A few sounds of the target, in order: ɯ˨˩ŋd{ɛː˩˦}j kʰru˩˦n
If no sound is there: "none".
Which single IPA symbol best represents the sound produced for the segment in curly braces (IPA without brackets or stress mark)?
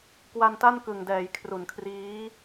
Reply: ɛː˩˦